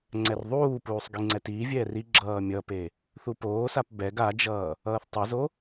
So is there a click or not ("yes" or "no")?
yes